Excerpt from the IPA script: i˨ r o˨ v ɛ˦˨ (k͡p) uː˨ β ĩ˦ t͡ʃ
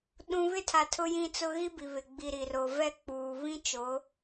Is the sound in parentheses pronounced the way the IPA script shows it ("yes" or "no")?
yes